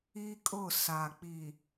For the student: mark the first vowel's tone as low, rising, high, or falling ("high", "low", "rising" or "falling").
high